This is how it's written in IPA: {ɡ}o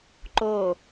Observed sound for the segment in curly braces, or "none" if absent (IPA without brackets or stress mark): ǃ